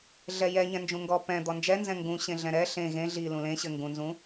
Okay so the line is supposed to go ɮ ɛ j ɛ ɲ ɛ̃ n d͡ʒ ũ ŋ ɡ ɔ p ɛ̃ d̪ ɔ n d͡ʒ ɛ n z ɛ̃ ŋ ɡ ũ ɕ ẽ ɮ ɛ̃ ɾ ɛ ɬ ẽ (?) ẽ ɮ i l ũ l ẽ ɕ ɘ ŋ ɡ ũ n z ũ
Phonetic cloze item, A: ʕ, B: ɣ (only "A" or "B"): B